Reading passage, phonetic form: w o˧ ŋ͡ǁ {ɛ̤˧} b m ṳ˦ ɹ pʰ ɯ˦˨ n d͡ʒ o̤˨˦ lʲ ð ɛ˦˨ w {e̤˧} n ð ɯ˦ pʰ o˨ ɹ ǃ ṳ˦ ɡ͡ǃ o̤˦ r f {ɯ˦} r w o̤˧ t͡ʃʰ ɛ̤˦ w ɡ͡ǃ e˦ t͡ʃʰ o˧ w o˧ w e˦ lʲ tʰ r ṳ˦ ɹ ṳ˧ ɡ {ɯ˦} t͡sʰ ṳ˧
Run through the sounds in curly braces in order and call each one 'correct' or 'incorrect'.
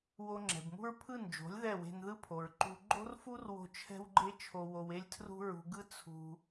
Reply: incorrect, correct, incorrect, correct

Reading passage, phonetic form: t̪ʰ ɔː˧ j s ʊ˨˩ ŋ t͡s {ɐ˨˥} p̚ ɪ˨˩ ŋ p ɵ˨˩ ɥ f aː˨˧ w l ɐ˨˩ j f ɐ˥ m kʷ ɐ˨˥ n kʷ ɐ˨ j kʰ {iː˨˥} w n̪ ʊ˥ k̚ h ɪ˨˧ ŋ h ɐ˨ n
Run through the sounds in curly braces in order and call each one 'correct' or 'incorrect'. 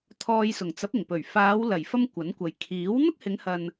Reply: correct, correct

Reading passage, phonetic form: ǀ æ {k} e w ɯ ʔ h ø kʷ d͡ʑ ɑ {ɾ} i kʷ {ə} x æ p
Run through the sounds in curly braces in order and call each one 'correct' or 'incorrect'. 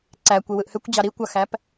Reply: incorrect, correct, incorrect

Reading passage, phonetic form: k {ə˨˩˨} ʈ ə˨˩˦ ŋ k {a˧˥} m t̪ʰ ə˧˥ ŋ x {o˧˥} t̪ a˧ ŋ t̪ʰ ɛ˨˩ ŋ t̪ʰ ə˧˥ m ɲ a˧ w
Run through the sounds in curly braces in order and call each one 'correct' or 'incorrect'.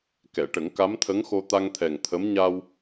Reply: incorrect, correct, incorrect

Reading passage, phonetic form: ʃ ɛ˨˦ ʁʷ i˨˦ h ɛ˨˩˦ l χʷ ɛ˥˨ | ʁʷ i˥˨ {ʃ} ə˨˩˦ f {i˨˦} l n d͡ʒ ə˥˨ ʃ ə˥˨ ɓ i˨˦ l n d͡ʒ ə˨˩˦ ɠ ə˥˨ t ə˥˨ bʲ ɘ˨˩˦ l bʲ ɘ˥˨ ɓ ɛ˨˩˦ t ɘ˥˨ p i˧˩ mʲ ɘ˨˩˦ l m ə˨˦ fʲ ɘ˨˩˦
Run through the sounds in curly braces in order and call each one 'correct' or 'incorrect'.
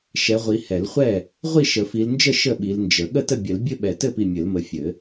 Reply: correct, correct

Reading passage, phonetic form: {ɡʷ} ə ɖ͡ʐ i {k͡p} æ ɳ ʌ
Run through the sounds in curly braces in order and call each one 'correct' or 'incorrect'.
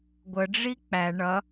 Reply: correct, correct

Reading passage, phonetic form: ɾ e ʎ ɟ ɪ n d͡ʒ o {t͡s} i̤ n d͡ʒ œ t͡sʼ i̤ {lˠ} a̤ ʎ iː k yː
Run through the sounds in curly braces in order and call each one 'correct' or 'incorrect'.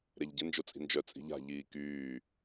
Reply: incorrect, incorrect

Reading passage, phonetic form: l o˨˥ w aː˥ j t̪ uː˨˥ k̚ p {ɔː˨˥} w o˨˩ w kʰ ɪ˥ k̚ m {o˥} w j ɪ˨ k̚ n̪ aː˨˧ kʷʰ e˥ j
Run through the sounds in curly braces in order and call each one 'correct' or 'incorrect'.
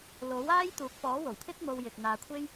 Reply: correct, incorrect

